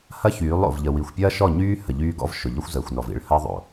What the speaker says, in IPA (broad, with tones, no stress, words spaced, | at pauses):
hɐ˦çyː˨˦lˠ o̰˨vʎə˨ wi˨xʷpʲɐː˦ʃɔ˦˨ ɲyː˦ hə˨ʎyː˦ɡɔ̰˦v ʃʊ˨ʎɔ˦xʷzəː˨xʷnɔ˨v ḭ˨˦ɭhɐː˦ðˤo̰˨